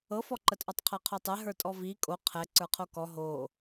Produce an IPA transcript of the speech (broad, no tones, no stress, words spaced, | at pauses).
ɤfɔǃɜtʔɔtˤ qʰɜqʰotˤɛ ɦə˞tʼɔvi kʼo qʰɛ ǀə˞qʰokɔ ɦo